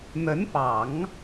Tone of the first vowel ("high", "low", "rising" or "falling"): rising